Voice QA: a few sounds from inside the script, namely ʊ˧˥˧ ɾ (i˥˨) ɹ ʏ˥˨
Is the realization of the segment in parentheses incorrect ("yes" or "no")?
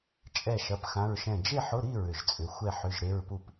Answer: no